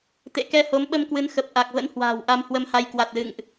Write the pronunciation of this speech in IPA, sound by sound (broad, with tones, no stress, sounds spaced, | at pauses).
t̪ ḛ˧˨ k ɛ˧ h o˨˦ m ɓ ə˧ m k w ɨ˨˦ n x ə˨˩ p̚ ʔ a˨˩ k̚ v ə̰˧˥ n h w a̤ː˨˩ w ʔ a˧ m h w ə˧ m h a˧ j k w a˨˩ t̚ l ɨ̰˧˨ ŋ ʔ